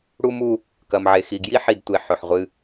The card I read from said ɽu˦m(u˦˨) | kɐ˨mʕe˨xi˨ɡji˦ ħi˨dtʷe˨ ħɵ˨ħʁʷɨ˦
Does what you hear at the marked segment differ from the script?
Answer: yes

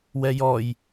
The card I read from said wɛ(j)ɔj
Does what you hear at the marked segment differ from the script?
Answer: no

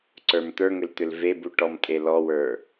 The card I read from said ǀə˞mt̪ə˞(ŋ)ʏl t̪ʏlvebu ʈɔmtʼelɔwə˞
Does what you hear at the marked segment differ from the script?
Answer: no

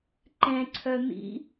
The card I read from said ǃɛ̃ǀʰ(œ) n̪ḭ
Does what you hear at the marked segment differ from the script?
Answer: no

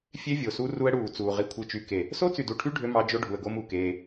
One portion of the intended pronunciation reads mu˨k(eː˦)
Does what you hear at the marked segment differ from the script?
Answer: no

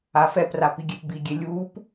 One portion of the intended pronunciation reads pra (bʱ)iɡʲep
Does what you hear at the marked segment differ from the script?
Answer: yes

